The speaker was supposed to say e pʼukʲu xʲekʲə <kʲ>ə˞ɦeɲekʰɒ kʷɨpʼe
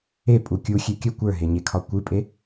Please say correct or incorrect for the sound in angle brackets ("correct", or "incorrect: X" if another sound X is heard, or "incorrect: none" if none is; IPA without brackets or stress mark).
incorrect: kʷ